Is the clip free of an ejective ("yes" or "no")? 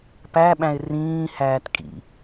no